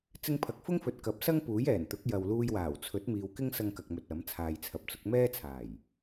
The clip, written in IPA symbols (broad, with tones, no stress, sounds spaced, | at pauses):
t͡s ɪ˧ ŋ pʰ ɐ˨ k̚ f ʊ˥ ŋ f ɵ˨ t̚ k ɐ˨˥ p̚ s ɐ˥ ŋ p uː˨˥ j ɛː˨˩ n t̪ ʊ˨˥ k̚ j ɐ˨ w l uː˧ j w aː˨˩ w t͡sʰ ɵ˨˥ t̚ m iː˨ w k ɪ˥ ŋ s ɐ˧ ŋ k ɐ˧ k̚ m ɵ˧ t̚ ɐ˨˥ m t͡sʰ aː˨ j t͡sʰ ɐ˨ p̚ t͡s ʊ˨˥ k̚ m ɛː˥ t͡sʰ aː˨˩ j